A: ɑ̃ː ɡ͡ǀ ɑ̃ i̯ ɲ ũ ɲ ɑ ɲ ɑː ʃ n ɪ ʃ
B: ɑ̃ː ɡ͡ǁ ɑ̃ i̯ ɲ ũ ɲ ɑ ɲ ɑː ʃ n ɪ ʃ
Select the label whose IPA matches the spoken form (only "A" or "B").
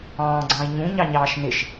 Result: A